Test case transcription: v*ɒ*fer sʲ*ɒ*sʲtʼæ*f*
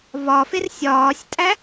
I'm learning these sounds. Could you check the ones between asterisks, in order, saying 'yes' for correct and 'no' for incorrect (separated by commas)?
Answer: yes, no, no